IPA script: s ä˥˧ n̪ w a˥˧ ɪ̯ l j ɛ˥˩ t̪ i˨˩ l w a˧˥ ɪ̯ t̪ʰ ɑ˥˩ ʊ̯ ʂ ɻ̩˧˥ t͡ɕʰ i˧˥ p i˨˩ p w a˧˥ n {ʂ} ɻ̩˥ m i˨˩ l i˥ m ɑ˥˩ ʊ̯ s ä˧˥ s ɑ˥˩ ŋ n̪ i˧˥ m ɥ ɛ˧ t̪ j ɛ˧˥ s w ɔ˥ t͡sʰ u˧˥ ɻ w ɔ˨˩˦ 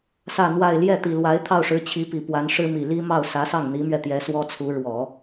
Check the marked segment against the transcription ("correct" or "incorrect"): correct